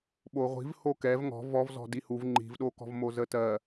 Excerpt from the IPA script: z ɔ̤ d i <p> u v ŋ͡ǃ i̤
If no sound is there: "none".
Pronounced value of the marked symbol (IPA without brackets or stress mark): h